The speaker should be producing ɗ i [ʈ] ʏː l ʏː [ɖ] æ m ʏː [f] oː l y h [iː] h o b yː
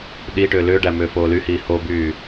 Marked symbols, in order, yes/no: yes, yes, yes, yes

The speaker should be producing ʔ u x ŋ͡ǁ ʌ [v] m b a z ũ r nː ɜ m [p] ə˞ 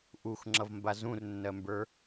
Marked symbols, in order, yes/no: yes, no

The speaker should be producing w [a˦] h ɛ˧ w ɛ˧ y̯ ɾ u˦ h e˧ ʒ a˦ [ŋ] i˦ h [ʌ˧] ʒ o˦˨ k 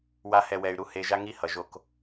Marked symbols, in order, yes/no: yes, yes, no

